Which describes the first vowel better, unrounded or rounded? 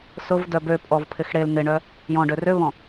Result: rounded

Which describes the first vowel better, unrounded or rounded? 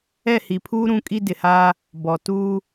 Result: unrounded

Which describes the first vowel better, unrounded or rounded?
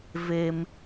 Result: unrounded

